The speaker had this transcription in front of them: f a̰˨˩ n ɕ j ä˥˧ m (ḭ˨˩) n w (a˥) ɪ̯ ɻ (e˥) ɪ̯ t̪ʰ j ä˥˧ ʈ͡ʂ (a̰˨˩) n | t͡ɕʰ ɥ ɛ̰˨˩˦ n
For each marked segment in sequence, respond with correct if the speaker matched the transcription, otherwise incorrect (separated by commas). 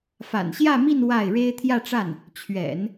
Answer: incorrect, incorrect, correct, incorrect